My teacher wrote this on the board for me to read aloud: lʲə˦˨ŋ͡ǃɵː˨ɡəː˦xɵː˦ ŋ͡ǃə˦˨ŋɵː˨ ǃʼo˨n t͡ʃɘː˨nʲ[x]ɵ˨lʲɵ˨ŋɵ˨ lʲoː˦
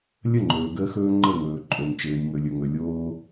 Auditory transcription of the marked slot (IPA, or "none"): ŋ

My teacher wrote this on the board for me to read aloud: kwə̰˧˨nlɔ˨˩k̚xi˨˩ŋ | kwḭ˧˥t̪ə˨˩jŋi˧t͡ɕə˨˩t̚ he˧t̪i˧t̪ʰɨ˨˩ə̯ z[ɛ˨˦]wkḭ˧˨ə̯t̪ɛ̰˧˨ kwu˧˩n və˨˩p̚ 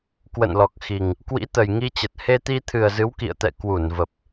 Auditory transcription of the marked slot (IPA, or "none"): ɨ˨˦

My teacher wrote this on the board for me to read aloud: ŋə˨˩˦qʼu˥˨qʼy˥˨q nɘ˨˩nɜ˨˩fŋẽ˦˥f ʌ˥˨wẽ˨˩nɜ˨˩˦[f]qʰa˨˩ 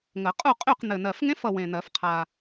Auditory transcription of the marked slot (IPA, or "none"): f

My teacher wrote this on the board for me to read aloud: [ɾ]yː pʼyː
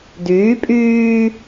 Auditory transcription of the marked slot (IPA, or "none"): d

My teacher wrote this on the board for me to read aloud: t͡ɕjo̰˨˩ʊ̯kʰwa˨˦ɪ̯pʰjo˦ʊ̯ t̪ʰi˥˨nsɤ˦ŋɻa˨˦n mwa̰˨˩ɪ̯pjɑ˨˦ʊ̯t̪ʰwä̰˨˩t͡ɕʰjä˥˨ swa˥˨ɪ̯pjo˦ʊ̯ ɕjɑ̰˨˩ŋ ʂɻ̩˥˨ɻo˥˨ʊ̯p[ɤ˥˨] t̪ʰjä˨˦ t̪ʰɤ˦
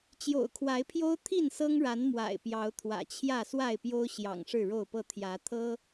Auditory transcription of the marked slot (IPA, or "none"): ɤ˥˨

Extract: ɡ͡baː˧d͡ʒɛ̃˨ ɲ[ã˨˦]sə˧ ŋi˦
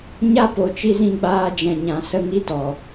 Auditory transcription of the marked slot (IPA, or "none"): ã˨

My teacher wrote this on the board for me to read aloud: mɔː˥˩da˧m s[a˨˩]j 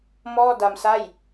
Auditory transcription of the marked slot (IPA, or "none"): a˥˩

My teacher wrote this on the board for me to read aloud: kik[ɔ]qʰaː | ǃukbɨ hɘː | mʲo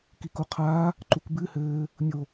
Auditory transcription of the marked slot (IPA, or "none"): o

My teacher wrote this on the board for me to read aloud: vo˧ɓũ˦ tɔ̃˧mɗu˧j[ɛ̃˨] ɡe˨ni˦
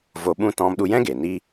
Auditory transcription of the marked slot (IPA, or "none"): ɛ̃˦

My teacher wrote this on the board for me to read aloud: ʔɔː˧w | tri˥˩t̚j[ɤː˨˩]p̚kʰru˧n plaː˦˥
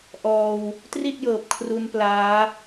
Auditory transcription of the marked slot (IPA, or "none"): ɤː˨˩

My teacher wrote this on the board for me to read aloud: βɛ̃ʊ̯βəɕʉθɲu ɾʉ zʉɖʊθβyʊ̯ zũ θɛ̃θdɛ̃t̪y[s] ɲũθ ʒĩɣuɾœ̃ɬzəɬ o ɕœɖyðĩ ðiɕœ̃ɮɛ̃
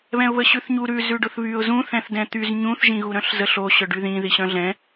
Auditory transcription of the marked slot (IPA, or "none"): z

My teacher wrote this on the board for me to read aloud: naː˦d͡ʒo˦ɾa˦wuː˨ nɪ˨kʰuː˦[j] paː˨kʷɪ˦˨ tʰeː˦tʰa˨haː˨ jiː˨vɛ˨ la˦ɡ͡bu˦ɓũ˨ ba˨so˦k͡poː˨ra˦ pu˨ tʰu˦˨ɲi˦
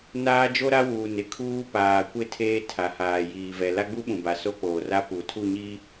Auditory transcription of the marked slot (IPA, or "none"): none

